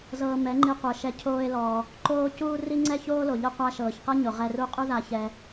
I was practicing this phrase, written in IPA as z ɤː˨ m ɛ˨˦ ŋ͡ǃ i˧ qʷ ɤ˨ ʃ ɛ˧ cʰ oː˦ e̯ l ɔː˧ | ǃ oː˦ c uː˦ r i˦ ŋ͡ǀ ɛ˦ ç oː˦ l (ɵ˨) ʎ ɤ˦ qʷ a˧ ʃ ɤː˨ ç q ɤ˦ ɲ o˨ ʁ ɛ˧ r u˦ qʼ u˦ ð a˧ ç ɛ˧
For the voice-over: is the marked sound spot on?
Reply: no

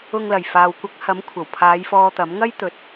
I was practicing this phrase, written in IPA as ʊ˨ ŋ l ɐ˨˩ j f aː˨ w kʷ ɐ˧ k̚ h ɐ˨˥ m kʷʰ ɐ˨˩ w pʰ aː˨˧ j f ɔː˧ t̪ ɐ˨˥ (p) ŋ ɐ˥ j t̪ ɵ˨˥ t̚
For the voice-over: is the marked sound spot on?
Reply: no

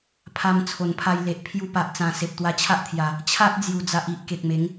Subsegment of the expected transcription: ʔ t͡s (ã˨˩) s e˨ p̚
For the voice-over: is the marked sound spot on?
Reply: yes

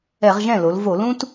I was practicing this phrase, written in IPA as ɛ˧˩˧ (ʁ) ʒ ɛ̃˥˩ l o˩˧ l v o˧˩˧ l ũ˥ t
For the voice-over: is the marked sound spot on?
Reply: yes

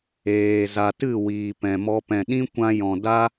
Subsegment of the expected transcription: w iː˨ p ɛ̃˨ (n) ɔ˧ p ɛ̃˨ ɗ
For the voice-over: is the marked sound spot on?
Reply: no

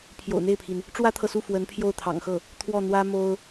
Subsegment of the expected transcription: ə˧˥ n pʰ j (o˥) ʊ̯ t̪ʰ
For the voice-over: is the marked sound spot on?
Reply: no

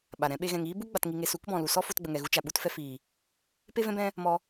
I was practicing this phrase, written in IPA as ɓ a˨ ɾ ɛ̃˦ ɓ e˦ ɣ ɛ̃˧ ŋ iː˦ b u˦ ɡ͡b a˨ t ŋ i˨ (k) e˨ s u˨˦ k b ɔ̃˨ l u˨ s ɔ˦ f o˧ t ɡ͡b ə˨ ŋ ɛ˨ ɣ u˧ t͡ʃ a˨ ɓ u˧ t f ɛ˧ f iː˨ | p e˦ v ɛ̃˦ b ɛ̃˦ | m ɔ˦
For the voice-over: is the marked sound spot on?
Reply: no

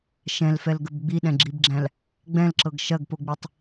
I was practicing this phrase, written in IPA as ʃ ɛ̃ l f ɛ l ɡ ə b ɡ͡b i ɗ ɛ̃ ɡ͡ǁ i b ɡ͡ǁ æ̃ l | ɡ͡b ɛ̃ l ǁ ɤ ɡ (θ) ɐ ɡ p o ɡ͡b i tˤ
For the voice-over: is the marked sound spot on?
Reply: no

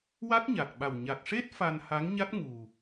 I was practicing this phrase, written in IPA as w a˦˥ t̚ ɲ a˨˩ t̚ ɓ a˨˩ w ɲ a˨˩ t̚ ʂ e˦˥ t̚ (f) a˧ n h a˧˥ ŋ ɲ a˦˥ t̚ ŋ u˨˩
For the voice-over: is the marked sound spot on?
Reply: yes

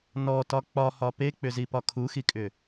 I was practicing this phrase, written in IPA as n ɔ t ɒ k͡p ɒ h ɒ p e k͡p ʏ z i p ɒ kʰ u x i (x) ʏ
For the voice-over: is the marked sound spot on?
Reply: no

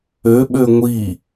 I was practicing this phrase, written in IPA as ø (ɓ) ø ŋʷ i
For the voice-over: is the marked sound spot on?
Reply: yes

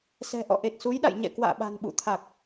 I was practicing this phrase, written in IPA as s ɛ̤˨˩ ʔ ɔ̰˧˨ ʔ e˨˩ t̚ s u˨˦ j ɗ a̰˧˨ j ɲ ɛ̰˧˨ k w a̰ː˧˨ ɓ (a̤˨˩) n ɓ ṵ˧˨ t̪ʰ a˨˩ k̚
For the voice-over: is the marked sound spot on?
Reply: yes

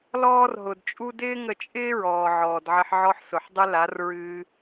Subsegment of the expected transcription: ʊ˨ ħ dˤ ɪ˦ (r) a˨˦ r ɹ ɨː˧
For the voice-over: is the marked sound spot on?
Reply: no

